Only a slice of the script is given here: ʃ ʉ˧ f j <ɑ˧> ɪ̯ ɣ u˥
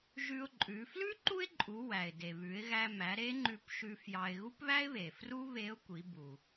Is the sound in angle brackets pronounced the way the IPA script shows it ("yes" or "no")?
yes